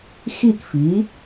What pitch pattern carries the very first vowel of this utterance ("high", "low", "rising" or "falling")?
falling